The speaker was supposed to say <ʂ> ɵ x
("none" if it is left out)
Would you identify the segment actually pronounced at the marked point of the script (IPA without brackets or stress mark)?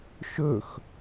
ʃ